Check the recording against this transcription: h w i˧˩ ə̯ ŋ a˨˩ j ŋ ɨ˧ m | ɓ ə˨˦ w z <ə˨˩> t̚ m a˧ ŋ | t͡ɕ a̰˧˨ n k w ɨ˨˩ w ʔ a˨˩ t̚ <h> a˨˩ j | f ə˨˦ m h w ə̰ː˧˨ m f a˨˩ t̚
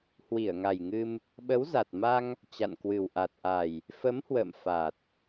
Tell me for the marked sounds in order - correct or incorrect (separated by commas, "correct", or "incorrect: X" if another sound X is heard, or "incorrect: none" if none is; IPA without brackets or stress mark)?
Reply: incorrect: a˨˩, incorrect: ʔ